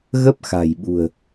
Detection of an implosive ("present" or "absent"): present